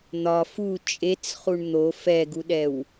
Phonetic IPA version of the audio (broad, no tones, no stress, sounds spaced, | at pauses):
n̪ ɒ f u t͡ʃʼ e t͡s χ u ɳ n̪ o f ɛ ɡ u ɗ ɛ w